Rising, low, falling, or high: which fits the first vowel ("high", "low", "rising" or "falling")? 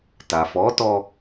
low